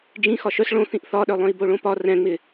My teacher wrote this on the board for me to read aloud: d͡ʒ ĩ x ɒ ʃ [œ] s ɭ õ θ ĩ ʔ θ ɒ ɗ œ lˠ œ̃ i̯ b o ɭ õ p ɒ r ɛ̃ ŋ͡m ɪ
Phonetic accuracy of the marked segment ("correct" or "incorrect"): correct